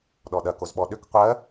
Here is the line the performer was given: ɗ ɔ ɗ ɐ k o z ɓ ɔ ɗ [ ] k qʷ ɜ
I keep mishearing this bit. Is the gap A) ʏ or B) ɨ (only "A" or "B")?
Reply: A